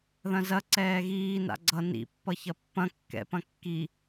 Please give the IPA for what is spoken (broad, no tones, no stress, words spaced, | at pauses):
ðɐ̃zɐ ǀɛːɣiː na̰ɡ͡ǀʌ nḭ pːʌçɐpːɐ̃ kːɛ̰ pɐ̃kːi